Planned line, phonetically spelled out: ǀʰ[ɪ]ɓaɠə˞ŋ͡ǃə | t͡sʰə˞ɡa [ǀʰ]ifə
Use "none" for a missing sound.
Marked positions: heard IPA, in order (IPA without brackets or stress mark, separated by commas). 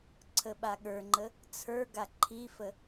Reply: ə, ǃʰ